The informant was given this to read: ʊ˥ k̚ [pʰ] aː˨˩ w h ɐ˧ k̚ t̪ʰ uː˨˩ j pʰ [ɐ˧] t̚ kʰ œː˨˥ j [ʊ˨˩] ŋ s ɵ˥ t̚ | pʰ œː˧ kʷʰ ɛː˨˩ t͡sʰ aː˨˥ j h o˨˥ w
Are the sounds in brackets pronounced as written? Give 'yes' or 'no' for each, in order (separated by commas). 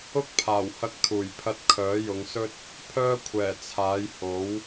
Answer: yes, yes, no